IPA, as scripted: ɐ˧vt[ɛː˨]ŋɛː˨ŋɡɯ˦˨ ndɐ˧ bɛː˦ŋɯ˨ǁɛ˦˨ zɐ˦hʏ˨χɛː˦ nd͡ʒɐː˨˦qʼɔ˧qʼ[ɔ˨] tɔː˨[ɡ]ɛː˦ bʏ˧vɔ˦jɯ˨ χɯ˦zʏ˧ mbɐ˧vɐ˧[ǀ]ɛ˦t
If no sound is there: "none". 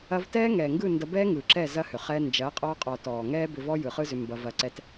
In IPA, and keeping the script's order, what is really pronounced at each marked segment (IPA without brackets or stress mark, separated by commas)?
ɛː˦, ɔ˨, ŋ, ǀ